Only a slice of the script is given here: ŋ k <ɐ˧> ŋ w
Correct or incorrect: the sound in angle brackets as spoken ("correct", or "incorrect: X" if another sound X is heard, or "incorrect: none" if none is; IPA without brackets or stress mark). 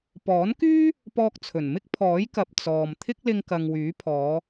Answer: incorrect: ɐ˨